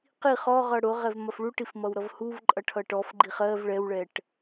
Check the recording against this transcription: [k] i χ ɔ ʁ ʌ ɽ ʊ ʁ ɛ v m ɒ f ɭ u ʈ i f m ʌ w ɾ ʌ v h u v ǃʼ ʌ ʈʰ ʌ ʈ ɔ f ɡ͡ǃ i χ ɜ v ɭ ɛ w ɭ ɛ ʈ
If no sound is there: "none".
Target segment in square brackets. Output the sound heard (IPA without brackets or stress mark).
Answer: q